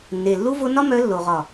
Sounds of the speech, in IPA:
nː e˨ lː u˦ v o˦ n ɒ˦ m œ˧ lː o˨ ʁ ɒ˨

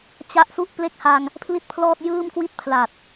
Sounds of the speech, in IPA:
t͡ɕ a˦˥ ʔ s u˦˥ ʔ p l e˥˩ k̚ h a˧ ŋ | pʰ l i˥˩ t̚ pʰ l ɔː˥˩ t̚ j ɯː˥˩ m k w i˥˩ t̚ pʰ l a˨˩ t̚

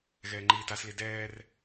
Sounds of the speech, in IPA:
ɣ ɛː ŋ͡ǃ iː t a s l i d ɛː r

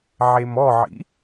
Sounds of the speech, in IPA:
ʕ e m ɔ ʕ ḭ

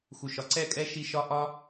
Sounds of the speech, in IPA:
x u˨ ʃ ɒ˨ ǀ ɛ˦˨ kʼ ɛ˦ ʃ i˧ ʃ ɒ˧ ʔ ɒ˧

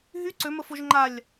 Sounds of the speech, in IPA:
ɦ y ǀ ø m ə f o ʒ ŋ͡ǃ a lʲ

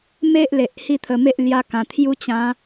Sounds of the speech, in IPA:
m e˦ ʔ l e˨ ʔ h i˥˧ t̪ʰ ə˧ m e˦ ʔ l j a˧ k ã˨˩ t̪ʰ j u˦ t͡ɕ ã˨˦

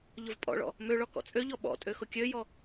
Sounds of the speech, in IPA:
ʎ ʊ v pʼ ɔ̰ ɭ ɔ̰ | m ø ɭ ɔ k ɔ̰ t͡sʼ ø ʎ ɔ ɓ ɔ̰ tʼ ø x ʊ kʲ ø j ɔ

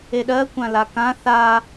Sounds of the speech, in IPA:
e ɗ ɜ kʷ ã l a k ã θ a

